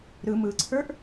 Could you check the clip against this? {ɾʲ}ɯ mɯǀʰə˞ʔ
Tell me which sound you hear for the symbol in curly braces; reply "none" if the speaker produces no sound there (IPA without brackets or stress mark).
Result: ɾ